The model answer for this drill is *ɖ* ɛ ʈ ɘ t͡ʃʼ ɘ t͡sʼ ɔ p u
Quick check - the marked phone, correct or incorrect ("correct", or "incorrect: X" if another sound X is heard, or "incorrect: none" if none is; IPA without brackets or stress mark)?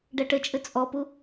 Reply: correct